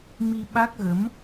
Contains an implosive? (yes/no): yes